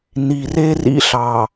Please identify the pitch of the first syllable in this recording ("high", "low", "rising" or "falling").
low